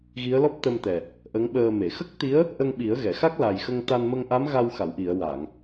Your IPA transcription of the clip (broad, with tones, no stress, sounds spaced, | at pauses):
ɣ i˧˥ ə̯ l ɔ˦˥ p̚ t̪ ə˧ m t̪ ɛ˨˩ | ʔ ə˧˥ ŋ ɓ əː˧ m e˨˩˨ x ə˦˥ k̚ t̪ i˧˥ ə̯ | ʔ ə˧ ŋ ɓ i˨˩˦ ə̯ ɣ ɛ˨˩˨ x a˦˥ k̚ l a˨˩ j x ə˧ ŋ t̪ a˧ n m ə˧ ŋ ʔ a˧˥ m ɣ a˧ w x a˨˩˨ w ʔ i˨˩˨ ə̯ w a˨˩˨ ŋ